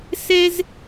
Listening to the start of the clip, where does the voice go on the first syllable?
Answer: high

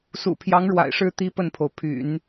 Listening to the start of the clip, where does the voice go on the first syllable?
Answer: low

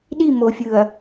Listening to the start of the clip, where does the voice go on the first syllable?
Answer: falling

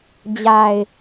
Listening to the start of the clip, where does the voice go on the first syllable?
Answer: low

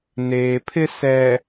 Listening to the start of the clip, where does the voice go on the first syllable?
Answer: low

